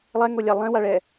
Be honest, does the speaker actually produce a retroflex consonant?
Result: yes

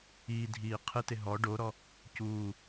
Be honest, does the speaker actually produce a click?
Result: no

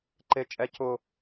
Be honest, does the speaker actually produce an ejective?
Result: yes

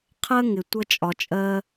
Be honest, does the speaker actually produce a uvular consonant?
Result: yes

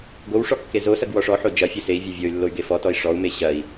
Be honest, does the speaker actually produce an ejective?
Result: no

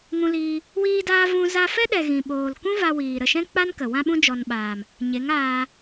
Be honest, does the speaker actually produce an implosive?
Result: yes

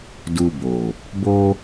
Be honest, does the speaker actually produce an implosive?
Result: no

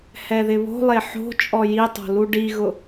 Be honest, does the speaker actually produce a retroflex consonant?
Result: yes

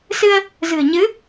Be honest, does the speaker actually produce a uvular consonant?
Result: no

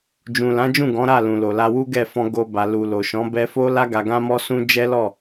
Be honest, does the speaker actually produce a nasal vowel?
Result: yes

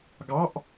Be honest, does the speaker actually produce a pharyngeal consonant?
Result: no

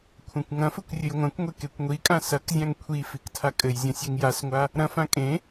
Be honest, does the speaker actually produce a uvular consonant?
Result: no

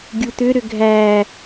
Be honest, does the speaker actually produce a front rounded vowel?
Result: yes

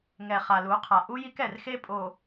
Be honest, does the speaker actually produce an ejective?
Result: yes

